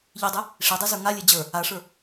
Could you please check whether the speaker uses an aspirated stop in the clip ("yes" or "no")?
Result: no